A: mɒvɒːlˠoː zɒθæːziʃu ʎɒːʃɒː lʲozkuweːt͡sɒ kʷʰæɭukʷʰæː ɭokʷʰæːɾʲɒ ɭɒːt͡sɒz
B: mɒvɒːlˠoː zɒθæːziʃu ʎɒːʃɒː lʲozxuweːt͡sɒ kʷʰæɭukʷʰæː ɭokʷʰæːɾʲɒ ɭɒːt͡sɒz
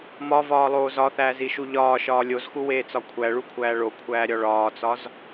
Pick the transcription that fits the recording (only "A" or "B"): B